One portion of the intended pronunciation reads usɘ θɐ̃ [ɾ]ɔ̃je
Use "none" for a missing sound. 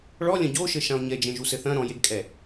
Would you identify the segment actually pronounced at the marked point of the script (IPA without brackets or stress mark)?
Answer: ɾ